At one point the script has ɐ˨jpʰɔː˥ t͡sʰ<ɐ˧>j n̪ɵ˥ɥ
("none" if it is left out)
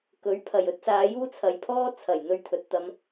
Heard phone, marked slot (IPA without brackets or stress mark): ɐ˨˩